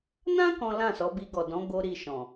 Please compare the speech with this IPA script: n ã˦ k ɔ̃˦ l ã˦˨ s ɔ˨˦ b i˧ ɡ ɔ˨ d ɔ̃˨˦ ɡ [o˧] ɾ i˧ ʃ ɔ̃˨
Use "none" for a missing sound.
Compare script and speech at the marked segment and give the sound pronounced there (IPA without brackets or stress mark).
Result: o˧